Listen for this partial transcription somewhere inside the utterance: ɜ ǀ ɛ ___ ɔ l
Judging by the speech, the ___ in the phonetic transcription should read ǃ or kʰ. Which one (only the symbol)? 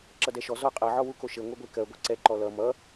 ǃ